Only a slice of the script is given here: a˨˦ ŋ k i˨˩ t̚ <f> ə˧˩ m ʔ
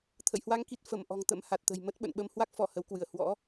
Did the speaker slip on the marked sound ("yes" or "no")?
no